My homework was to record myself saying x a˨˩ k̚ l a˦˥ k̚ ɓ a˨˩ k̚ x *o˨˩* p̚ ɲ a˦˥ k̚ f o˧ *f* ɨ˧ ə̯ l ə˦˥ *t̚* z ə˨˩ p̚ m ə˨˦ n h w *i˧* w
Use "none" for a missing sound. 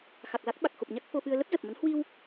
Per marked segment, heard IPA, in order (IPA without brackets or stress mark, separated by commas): o˨˩, f, p̚, i˧